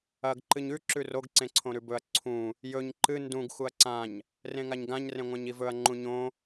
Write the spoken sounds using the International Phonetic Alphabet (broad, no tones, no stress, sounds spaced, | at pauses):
ɐ ɡ ǃ ɨ ɲ ʉ ǁ ʉ r o ɡ ǀ ẽ ǀʰ õ ɾ ʉ b ɵ ɐ̯ ǀʰ ũ | j ɵ ɲ ǃ ɨ n d ũ ɡ x u ɐ̯ ǀ ã ɲ | r ẽ ŋ a ɲ ɡ ã ɲ r ẽ ŋʷ ã ɲ i v ɵ ɐ̯ ŋ͡ǃ ũ ɲ õ